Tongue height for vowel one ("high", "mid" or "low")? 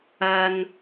low